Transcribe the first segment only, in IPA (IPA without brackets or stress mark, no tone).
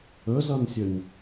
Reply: ɵ